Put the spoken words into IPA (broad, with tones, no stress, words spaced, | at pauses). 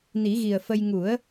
ni˨˩˦ɣi˨˩ə̯fə˧j ŋu˨˩˦ə̯